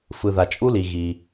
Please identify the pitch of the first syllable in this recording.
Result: low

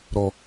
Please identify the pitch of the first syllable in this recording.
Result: high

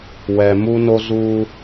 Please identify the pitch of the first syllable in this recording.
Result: low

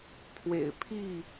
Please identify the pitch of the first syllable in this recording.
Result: low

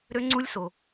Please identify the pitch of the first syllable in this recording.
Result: high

